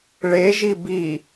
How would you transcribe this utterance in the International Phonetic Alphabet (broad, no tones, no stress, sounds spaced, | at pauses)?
ɭ e ʒ i b i